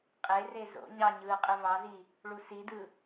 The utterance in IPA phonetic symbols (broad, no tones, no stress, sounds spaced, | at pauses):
qʼ e r e z o̰ ɲ ɑ ɲ ɯː qʼ ɯ v ɑ z i | ɭ u s i d ɯ